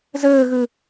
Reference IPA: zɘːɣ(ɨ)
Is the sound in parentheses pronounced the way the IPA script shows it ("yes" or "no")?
yes